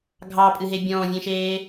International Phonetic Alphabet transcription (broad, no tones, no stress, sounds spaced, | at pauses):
ɡʱ ɑ pʼ ɨ ɦ e bʲ ɔ̃ː vʲ ẽ ʃ eː